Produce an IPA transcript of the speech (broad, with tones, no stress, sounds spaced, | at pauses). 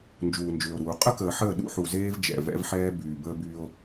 n d͡ʒ uː˨ n d͡ʒ ʏː˨ o̯ ɾ uː˨ qʼ ə˦ k əː˨ ħ əː˦˨ ɗ ṵ˦ ħ u˨ z eː˦ v d͡ʒ ɛ̰˨ v ɛ̰˦ v ħ ɛː˦ b yː˨ b əː˦ b yː˦ o̯